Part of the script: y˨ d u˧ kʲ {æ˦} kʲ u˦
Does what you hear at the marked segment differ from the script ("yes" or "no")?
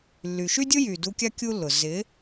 yes